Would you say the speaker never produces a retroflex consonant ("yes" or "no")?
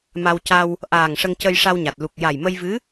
no